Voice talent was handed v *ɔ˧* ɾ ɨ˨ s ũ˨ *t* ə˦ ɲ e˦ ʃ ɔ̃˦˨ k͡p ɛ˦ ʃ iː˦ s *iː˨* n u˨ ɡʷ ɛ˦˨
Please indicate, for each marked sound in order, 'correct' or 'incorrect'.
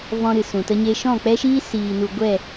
incorrect, correct, correct

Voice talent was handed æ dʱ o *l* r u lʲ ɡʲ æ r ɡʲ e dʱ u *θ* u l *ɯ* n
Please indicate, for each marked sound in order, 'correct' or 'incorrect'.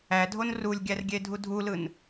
incorrect, incorrect, correct

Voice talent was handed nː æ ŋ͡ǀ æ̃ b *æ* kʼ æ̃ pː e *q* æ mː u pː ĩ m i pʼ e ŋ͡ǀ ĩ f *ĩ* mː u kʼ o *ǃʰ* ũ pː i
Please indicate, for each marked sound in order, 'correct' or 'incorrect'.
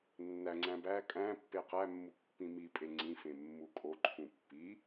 correct, correct, incorrect, correct

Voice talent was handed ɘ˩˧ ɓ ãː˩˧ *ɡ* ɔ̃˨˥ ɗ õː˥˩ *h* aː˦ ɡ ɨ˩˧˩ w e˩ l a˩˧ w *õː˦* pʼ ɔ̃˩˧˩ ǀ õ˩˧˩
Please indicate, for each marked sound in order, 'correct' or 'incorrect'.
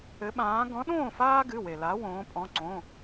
correct, incorrect, incorrect

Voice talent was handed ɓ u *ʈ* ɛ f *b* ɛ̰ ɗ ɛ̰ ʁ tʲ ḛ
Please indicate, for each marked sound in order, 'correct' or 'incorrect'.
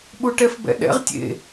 correct, correct

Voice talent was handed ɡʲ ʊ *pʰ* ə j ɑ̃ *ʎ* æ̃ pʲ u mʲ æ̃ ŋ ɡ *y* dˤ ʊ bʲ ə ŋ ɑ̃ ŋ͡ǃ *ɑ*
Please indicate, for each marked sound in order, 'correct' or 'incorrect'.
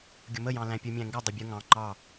incorrect, incorrect, incorrect, correct

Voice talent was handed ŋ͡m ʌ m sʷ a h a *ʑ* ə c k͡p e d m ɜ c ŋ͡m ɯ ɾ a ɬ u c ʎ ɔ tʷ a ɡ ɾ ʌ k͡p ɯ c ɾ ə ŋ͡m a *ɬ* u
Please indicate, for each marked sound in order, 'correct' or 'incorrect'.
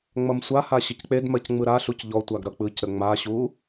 incorrect, incorrect

